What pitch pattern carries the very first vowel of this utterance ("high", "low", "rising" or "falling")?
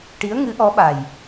rising